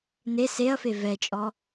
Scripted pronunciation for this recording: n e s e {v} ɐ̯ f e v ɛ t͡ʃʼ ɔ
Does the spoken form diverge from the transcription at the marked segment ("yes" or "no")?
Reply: yes